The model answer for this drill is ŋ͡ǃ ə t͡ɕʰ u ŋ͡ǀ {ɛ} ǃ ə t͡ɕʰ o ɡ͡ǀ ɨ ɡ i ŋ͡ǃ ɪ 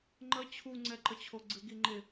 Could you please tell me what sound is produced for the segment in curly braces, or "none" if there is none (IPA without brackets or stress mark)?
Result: ɛ